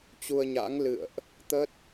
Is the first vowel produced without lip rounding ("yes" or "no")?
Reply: no